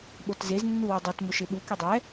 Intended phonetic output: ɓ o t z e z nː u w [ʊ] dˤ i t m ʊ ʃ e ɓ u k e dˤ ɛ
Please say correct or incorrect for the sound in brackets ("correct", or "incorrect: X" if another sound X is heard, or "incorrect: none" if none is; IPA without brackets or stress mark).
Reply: correct